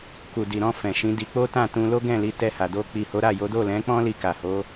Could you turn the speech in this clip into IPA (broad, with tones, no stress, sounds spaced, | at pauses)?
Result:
k u˨ d i˨ ɾ ɔ̃˧ f ɛ̃˨ ʃ ĩ˨˦ d i˧ k͡p o˦ t ã˦˨ t ũ˧ l o˦ ɡ ɛ̃˦˨ l i˨˦ t ɛ˧ h a˨ d o˧ k͡p i˨ h o˨˦ ɾ a˦˨ j o˨˦ d o˦˨ l ɛ̃˨˦ k͡p ɔ̃˦ l i˧ k a˨ h o˨˦